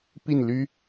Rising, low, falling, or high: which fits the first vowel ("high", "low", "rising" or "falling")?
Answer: falling